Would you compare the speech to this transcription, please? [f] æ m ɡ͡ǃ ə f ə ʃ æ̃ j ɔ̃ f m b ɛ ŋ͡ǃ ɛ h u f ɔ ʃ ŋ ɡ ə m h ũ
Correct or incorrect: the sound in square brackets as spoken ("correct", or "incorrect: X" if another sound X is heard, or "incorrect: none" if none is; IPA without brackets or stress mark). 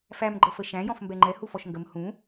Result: correct